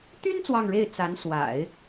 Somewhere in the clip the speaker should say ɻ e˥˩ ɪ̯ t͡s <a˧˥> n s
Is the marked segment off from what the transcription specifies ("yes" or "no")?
no